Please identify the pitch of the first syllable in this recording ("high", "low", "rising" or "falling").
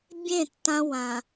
falling